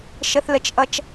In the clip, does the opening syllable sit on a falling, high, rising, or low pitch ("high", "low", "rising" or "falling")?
high